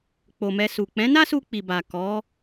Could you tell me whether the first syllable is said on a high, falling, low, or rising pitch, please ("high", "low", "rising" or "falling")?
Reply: low